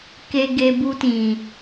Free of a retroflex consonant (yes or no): yes